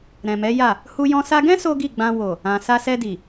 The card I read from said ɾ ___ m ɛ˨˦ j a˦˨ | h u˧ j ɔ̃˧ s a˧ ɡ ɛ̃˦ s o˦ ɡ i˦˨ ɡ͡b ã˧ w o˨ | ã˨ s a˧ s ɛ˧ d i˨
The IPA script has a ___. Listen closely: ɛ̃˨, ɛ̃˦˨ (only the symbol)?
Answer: ɛ̃˨